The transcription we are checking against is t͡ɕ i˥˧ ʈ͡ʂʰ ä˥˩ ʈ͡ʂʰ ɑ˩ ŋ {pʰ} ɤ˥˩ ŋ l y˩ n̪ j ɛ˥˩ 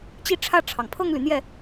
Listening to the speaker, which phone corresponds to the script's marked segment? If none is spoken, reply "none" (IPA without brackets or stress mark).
pʰ